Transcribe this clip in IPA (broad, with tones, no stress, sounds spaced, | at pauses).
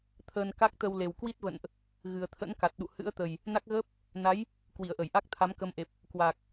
t̪ʰ əː˧ n k a˦˥ k̚ t̪ ə˧ w l e˨˩ w k w i˦˥ t̚ v ə̰˧˨ n ʔ | ɣ ɨ˨˩ ə̯ t̪ʰ ə̰˧˥ n k a˨˩ t̚ ɗ ṵ˧˨ h ɨ̰˧˥ ə̯ t̪ ə˨˩ j | n a˦˥ k̚ ɣ əː˦˥ p̚ | n a˨˦ j | k w i˧˩ ə̯ ʔ ə˧˩ j ʔ a˦˥ k̚ t̪ʰ a˨˦ m k ə˧ m ʔ e˨˩ p̚ | k w a˨˩ k̚